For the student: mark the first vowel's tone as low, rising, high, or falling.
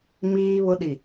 high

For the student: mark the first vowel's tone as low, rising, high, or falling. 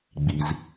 low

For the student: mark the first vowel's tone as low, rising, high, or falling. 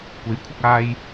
rising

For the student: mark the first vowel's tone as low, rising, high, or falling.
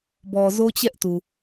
low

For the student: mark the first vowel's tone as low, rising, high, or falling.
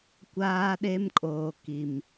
high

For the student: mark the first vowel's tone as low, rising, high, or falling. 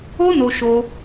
high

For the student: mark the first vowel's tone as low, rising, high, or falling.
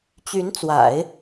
rising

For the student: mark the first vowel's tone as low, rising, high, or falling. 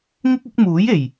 high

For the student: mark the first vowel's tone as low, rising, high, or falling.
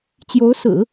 rising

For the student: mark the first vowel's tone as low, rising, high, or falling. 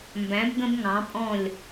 rising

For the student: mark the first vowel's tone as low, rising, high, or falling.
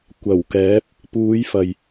low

